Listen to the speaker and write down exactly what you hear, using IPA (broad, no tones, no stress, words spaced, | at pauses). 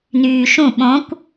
nyːʃũ ɓõkʷ